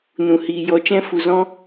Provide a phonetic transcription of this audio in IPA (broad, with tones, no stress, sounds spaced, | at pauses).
n ũ˨ h iː˨ j ɔ˧ t͡ʃ ɛ̃˦ f u˨ z ɔ̃˦